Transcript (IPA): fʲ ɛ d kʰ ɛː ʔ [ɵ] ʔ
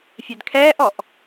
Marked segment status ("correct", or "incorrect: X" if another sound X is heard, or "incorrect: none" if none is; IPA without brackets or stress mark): incorrect: ɔ